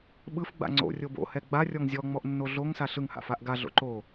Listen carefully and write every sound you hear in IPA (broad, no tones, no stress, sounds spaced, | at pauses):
ɓ ɯ f ɡ͡b a̰ ŋ͡ǀ o̰ rʲ o b o̰ h ɛ ɡ͡b a rʲ ɔ ŋ zʲ ɔ ŋ͡m ɔ ʔ nː o ɮ o ŋ s a ɬ ɯ ŋ h a̰ f a ʔ ɡ a ɮ o̰ ǃ o